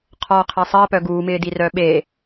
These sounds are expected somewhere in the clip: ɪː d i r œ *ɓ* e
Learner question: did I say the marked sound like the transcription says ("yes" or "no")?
yes